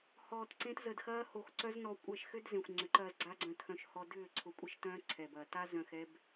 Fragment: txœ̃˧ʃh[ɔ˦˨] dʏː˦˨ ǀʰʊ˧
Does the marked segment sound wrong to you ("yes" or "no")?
yes